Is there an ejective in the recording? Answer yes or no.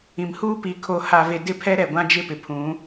no